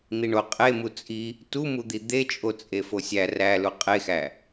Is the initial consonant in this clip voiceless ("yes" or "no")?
no